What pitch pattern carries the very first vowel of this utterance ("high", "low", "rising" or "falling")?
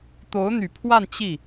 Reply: rising